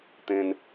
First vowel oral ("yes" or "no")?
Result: no